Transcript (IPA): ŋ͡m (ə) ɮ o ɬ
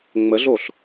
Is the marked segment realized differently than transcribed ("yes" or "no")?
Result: no